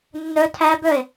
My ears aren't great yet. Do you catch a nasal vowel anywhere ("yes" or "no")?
no